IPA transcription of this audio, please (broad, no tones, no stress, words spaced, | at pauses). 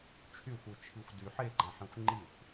t͡ʃʰyxʷɨt͡ʃʰixʷ dy ħeɡ͡ǃãħĩxʷ ŋ͡ǃixʷ